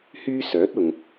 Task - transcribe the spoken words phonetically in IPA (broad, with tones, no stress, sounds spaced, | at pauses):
h yː˥ s œː˨˥ t̚ ʊ˨ ŋ